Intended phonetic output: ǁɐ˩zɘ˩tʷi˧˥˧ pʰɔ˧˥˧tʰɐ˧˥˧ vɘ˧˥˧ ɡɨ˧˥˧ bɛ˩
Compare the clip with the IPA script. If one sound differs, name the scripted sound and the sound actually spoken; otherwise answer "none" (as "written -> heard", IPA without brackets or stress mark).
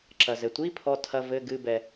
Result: none